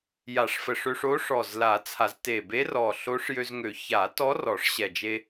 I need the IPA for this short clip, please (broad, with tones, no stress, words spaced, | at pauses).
ja˨˩˦ʂfə˨˩ʂø˧ʂo˧˥ ʂɔ˨˩zla˨˩˦ t͡sʰa˨˩˦zte˨˩ be˧˥ rɔ˨˩ɬo˧˥ʂjø˧zŋø˨˩˦ ça˨˩˦tɔ˧˥ rɔ˨˩˦ʂɕɛ˨˩d͡ʒe˧